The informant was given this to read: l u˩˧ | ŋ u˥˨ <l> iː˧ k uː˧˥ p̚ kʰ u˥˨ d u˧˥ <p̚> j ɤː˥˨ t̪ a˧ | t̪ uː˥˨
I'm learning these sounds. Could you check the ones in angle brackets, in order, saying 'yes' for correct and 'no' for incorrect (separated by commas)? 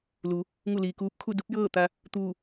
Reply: yes, yes